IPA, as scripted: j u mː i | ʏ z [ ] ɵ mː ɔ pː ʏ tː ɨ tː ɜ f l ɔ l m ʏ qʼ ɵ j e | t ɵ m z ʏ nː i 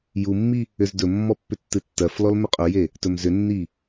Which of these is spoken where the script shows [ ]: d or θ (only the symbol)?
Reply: d